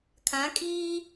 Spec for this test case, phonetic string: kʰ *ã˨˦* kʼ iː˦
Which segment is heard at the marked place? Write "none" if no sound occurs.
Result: ã˨˦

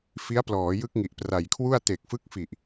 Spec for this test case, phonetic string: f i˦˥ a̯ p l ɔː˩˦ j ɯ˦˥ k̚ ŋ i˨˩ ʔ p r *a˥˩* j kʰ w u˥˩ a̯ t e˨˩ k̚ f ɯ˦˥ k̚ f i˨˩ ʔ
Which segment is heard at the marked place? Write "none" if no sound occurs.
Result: a˨˩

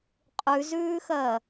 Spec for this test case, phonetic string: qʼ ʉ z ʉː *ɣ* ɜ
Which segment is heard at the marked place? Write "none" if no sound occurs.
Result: x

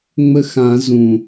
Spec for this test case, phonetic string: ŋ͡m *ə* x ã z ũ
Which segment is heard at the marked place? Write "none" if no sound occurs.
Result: ə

